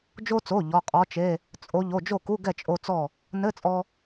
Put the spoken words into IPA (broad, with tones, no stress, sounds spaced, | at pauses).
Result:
d͡ʒ o˧ t͡s o˩˧˩ ʎ ɔ˩˧˩ qʼ ɔ˧˥ t͡ʃ e˧˥˧ | t͡sʼ o˧˥ ʎ o˩˧˩ d͡ʒ o˥˩ k u˧˥˧ ɡ ɛ˥˩ t͡ʃʼ o˧ t͡s ɔ˥˩ | n ɘ˧˥˧ t͡sʼ ɔ˧